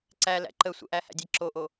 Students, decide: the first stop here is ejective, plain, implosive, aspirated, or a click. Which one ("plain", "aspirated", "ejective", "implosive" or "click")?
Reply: click